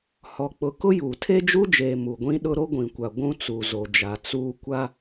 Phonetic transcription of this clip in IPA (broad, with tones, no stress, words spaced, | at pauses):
hɔ˨k͡pʊ˨ kʊ˦juː˨ tʰe˦d͡ʒu˦d͡ʒeː˨ mu˨ɡʷĩ˦ ɗʊ˦ ɾo˦ɡʷĩ˨kʷa˨ ɡʷũ˦t͡su˨zo˨d͡ʒa˨ t͡suː˦ kʷa˦